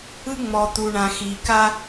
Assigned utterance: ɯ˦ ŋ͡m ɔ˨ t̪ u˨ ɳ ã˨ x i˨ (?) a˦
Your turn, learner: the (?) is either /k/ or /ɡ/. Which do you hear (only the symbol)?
k